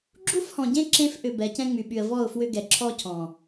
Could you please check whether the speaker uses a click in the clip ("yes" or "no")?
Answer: yes